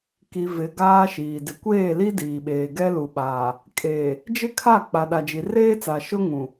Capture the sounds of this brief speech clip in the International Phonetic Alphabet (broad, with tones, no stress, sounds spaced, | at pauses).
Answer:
k i˨ v ɪ˨ ɡ aː˦ ʃ iː˨ d ɪ˨ kʷ eː˦˨ l i˦ d iː˨ ɓ eː˨ ɡ ɛ˦ l u˨ ɓ aː˨ | kʼ eː˨ | d͡ʒ ɪ˦ kʰ a˦˨ k͡p a˨ ɗ a˨ d͡ʒ i˨ r eː˦ t͡s a˨ ʃ ʊ˦ ŋ ũ˨